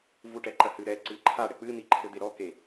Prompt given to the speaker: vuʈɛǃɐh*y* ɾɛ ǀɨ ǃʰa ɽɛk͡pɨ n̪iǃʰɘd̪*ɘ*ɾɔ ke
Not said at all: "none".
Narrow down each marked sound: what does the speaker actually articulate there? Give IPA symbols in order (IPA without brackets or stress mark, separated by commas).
ɨ, e